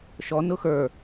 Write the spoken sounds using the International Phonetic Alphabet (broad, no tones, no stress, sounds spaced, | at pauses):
ʃ ɔ n ʊ x ə˞